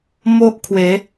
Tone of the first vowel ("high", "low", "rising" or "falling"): high